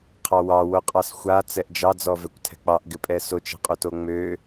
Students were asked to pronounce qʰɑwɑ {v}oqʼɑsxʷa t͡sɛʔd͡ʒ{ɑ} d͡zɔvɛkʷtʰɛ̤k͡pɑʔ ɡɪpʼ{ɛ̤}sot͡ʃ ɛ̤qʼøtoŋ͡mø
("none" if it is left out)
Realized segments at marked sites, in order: w, ɑ, ɛ

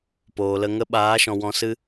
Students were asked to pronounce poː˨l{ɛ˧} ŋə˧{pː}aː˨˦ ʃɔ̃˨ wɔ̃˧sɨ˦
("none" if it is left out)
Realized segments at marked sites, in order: ə˧, ɓ

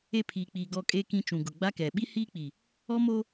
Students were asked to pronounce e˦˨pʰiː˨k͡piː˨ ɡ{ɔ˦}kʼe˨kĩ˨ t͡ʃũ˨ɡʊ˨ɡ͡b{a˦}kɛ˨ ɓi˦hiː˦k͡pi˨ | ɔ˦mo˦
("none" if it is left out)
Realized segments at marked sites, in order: ɔ˨, a˦

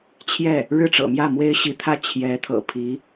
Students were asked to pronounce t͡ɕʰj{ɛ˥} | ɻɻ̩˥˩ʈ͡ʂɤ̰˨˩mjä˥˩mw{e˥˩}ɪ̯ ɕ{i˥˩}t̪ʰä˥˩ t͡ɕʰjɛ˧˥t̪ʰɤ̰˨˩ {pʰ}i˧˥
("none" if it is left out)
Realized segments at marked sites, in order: ɛ˥˩, e˥, i˧˥, pʰ

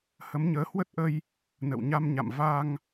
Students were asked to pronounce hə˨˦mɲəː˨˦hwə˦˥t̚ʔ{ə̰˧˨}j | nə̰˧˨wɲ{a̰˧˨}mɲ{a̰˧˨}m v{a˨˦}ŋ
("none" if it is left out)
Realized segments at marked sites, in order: ə˧, a˧, a̰˧˨, a˧

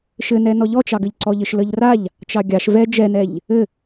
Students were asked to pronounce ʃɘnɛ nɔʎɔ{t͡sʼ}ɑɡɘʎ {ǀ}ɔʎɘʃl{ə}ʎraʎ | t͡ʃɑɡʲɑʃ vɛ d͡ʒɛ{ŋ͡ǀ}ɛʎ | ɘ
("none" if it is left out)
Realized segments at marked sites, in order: t͡ʃ, ǀ, ə, n

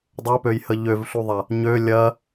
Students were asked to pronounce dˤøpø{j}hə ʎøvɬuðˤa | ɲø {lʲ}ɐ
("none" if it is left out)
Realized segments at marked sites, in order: j, lʲ

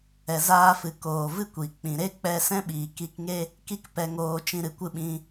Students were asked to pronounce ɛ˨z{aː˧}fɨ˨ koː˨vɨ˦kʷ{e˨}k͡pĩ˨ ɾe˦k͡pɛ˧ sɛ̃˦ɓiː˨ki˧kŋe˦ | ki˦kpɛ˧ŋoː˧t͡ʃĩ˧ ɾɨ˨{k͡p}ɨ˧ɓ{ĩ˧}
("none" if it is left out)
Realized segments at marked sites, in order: aː˧, i˨, kʷ, ĩ˧

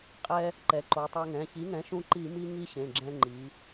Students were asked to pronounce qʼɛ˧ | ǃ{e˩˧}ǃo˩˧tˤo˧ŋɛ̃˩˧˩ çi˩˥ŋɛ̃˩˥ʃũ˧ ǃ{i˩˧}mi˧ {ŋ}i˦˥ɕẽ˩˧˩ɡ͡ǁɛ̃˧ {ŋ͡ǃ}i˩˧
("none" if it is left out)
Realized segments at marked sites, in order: ɛ˩˧, i˧˩˧, ŋ, ŋ͡ǃ

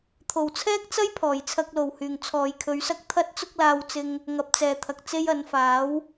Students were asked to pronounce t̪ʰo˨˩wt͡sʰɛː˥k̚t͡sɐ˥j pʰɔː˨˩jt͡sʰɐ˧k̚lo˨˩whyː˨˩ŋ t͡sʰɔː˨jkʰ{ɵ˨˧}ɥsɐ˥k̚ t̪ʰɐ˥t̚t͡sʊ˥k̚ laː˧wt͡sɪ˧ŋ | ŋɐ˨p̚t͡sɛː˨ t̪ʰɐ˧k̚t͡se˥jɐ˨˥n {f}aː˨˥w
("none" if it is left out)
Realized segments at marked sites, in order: ɵ˨˧, f

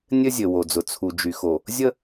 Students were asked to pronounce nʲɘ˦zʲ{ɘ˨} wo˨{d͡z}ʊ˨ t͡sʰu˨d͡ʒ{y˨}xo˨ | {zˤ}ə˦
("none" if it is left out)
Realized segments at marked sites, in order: ɘ˨, d͡z, y˨, zʲ

